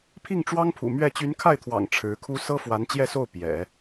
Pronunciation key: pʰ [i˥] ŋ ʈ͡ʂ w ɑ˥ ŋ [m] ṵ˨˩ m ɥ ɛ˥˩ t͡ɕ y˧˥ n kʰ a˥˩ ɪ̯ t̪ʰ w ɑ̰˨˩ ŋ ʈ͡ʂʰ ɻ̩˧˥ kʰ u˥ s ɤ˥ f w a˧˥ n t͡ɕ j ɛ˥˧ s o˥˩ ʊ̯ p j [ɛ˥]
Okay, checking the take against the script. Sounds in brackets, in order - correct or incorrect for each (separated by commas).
incorrect, incorrect, incorrect